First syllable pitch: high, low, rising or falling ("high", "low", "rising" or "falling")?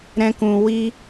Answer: high